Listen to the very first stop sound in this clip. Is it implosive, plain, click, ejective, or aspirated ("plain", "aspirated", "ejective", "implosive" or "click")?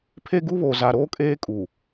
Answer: aspirated